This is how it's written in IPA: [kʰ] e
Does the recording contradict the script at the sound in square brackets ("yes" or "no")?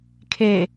no